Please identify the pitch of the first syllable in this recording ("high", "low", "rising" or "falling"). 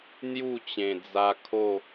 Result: falling